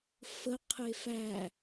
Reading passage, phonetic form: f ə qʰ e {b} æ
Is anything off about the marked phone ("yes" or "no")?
yes